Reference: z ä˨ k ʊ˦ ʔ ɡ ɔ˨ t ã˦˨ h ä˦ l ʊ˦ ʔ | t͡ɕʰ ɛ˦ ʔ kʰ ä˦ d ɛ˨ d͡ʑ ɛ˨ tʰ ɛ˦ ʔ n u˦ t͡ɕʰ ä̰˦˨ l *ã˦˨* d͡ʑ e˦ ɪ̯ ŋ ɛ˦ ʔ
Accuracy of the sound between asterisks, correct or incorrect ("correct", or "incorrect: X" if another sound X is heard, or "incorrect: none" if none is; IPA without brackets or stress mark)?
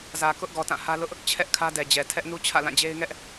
correct